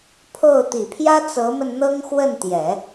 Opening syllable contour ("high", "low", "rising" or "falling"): falling